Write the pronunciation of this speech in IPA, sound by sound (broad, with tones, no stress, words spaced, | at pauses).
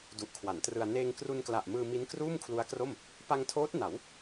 du˨˩ʔkʰwa˩˦ntrɯ˧a̯ neː˧ŋkru˧nkla˨˩ʔ mɯː˧mi˦˥n kruː˥˩mkʰlu˦˥a̯kro˥˩m | pa˧ŋtʰoː˦˥t̚ na˩˦w